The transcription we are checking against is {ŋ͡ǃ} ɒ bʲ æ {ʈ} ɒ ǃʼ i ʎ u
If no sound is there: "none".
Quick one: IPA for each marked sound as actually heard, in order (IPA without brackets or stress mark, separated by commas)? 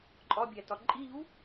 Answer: ǃʼ, t